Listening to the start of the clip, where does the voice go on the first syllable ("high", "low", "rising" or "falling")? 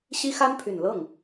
high